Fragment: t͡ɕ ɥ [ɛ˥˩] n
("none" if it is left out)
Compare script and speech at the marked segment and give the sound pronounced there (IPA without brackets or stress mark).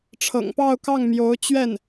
ɛ˥˩